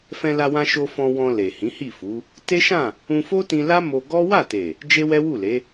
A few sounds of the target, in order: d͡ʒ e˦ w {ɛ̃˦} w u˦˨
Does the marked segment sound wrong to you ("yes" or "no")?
yes